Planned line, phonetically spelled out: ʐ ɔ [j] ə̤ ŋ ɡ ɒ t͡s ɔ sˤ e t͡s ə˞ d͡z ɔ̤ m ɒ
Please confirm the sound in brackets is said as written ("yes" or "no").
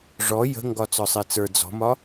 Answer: yes